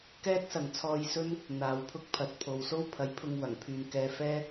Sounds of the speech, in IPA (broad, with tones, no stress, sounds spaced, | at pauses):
k ɛː˥ t̚ s ɐ˨ ŋ t͡sʰ ɔː˧ j s ɵ˥ n | n̪ aː˨ w pʰ ʊ˥ k̚ pʰ ɐ˨ t̚ pʰ o˨ w s o˥ w pʰ ɐ˨˥ j pʰ ʊ˧ ŋ w ɐ˨˩ ŋ pʰ yː˨ n k ɛː˧ f ɛː˥